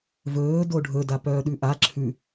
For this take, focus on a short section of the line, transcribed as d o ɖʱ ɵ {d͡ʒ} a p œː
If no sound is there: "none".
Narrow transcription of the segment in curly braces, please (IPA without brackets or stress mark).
d